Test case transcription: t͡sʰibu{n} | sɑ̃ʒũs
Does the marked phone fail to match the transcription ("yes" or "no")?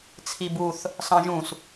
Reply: yes